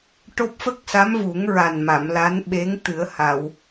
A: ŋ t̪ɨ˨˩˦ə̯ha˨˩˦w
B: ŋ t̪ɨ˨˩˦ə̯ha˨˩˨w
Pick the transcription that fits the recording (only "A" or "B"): B